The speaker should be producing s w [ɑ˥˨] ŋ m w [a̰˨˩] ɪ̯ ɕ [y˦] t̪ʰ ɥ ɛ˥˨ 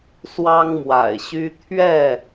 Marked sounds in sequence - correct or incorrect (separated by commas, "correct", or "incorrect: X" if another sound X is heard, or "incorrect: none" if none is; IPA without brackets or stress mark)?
incorrect: ɑ˦, correct, correct